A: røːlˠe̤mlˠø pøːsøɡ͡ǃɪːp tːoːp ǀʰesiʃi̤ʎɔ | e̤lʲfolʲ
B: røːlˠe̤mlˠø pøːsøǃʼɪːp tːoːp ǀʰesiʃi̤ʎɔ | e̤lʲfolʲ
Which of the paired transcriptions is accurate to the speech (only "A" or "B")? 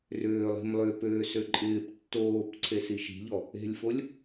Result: B